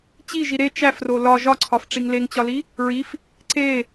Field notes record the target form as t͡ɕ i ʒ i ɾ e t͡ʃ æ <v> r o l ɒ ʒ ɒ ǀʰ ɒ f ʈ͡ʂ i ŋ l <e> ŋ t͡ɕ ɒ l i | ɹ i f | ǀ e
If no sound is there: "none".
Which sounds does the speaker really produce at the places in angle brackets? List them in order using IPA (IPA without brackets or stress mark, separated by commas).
f, e